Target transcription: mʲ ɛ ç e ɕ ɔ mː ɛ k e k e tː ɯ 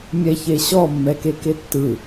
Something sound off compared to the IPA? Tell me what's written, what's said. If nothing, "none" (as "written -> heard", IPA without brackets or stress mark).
none